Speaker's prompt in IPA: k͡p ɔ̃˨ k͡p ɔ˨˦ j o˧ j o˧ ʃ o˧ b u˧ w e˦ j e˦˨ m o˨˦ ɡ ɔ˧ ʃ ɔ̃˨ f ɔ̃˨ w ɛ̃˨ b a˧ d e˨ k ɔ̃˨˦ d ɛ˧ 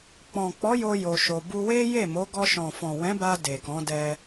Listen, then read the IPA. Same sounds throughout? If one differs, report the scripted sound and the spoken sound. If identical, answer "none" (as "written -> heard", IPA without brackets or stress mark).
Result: ɛ̃˨ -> ɛ̃˨˦